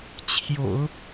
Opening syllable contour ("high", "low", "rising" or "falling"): low